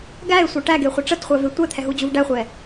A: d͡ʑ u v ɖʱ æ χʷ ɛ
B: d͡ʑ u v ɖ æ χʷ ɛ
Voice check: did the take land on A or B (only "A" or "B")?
B